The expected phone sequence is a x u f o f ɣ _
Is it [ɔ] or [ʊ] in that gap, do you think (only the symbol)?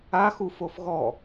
ɔ